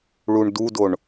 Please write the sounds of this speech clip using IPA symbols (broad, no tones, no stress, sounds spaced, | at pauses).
ɭ u ɳ d u d o ɳ